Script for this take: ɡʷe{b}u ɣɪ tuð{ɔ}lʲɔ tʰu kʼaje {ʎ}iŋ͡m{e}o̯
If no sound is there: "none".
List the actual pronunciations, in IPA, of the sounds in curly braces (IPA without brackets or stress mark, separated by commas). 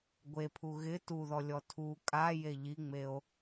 pʰ, ɔ, ʎ, e